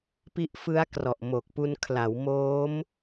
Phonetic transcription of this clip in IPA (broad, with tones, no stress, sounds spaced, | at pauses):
p i˦˥ ʔ f ɯ˦˥ a̯ k r ɔ˨˩ ʔ m o˨˩ k̚ p u˧ n kʰ l a˩˦ w m oː˦˥ m